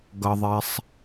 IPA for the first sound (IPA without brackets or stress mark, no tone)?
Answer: ɡ